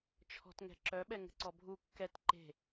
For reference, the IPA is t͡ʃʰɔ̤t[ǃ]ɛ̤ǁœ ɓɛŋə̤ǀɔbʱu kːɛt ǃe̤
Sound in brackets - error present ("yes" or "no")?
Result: yes